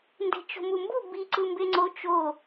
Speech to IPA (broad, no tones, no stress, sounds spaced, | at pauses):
n d e̤ t͡ʃ o̤ m u m b u b i ǀ ɯ m b e ŋ͡ǀ o t͡ʃ o